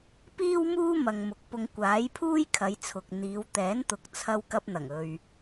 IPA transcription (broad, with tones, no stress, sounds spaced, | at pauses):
p iː˥ w m uː˥ m ɐ˨ ŋ m ʊ˨˥ k̚ p ʊ˧ ŋ kʷ aː˨˥ j pʰ uː˥ j kʰ ɐ˨˧ j t͡sʰ ʊ˨ k̚ n̪ iː˨˧ w t̪ ɛː˨˥ n t̪ ʊ˨ k̚ t͡sʰ ɐ˧ w k ɐ˧ p̚ n̪ ɐ˨˩ ŋ ɵ˨ ɥ